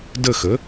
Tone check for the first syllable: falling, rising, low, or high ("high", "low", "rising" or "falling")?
falling